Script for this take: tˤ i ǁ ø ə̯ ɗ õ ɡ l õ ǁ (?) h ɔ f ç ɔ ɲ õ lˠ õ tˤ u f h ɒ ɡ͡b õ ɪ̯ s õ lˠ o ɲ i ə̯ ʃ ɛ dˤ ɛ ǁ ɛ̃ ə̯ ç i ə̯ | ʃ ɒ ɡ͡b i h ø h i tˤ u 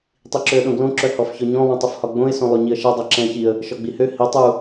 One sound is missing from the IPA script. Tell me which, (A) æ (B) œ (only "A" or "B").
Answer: B